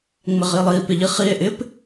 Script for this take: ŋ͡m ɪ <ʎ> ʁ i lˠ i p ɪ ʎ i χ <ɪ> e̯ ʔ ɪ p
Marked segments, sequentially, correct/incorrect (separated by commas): incorrect, incorrect